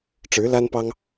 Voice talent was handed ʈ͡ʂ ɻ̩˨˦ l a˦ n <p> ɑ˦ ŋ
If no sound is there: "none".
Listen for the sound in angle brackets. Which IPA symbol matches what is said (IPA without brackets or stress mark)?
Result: p